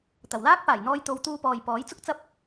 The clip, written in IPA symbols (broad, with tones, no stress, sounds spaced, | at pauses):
t̪ ɐ˨˩ w l aː˥ k̚ p aː˨˩ j n̪ ɔː˧ j t̪ o˨˧ w t̪ uː˧ p ɔː˨ j p ɔː˨˥ j t͡s ʊ˥ k̚ t͡s ɐ˥ p̚